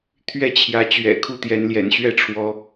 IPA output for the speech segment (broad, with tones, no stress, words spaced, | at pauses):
t̪ʰɥɛ˥˨ t͡ɕʰjä˨˦t͡ɕɥɛ̰˨˩kʰu˥˨ t̪jɛ˨˦nljɛ̰˨˩nɕɥɛ˥˨ʈ͡ʂʰwɔ˨˦